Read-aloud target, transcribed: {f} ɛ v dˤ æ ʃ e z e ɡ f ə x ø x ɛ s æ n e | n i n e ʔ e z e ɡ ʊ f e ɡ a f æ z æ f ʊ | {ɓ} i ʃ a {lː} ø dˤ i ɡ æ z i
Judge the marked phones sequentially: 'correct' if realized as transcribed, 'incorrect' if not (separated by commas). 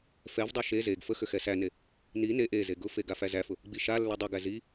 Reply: correct, incorrect, correct